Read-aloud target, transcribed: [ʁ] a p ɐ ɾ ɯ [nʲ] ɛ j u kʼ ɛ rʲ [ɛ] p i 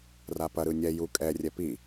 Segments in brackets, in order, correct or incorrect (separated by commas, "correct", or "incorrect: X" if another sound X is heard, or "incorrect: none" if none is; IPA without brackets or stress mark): incorrect: r, correct, correct